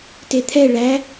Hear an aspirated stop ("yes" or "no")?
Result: yes